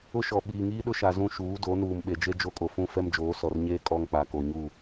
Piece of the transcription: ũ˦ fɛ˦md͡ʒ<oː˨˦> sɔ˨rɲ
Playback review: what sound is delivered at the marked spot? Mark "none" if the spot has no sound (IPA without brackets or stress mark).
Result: oː˨˦